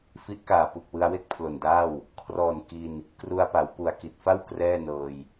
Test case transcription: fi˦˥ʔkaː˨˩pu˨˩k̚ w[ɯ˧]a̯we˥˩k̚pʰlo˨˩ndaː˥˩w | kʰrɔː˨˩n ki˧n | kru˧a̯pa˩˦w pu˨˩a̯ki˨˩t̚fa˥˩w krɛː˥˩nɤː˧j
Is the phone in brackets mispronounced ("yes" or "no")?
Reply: no